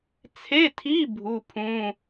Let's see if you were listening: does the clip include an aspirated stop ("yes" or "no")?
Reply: yes